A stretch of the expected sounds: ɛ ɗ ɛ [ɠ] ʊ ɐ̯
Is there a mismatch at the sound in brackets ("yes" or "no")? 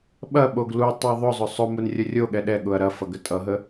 no